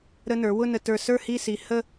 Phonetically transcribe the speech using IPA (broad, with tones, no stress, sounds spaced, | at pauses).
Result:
ɾ ə˧ n ə˞˩˧ w ʊ˥˧ n ə˧ t ə˞˧ s ə˞˥˧ h i˥˧ s i˧ h ə˥˧